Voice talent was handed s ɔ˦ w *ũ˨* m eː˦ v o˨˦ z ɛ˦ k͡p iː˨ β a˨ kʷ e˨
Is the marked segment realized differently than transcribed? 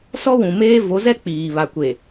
no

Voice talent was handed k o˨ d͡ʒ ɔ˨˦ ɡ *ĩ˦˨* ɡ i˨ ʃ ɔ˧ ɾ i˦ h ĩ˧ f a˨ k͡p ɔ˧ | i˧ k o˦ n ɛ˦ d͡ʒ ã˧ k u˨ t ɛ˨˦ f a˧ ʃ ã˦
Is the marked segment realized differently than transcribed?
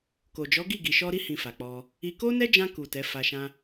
yes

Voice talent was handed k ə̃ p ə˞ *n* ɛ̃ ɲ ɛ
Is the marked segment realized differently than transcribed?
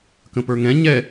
yes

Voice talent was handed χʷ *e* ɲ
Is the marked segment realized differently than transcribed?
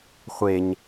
no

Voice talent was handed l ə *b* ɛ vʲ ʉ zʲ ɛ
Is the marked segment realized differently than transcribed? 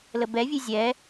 no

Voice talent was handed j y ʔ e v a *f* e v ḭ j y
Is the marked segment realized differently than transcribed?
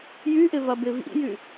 yes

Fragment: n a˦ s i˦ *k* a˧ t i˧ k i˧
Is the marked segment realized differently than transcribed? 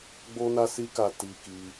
no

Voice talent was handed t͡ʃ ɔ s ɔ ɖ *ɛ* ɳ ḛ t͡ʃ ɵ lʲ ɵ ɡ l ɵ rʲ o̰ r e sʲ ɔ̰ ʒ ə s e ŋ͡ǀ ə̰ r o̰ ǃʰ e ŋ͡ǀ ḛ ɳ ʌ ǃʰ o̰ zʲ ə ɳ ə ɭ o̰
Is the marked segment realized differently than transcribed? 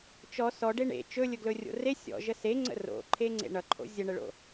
yes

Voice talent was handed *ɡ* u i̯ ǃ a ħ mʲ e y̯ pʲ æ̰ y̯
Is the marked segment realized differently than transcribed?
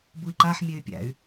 yes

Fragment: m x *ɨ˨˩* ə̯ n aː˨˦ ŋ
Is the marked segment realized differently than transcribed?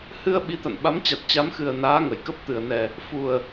no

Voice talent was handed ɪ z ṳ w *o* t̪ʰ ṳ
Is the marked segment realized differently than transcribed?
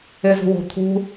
yes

